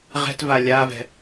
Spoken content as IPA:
ʁ ɛ̤ t v a lʲ a v ɛ̤

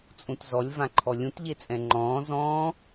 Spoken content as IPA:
t͡sʼ ũ t z ɔ lʲ v ã ǃʰ ɔ lʲ ũ t ʎ e t͡sʼ ɛ̃ ŋ͡ǃ ɔ̃ː z ɔ̃ː

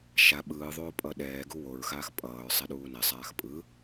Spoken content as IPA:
ʃ a ɓ ɯː ðˤ oː pʼ ʌ ɗ ɛː ɡ u w o ɹ x aː x pʼ ʌː ɹ sˤ e ɗ uː n ɛ sˤ aː x pʼ ɯ

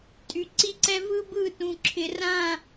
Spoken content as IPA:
tʼ y˨ ǀ i˦ ǀ ɛ˦ v ɯ˦ b ɯ˦˨ t ũ˨ ǁʰ ɪ˨ r ã˦˨

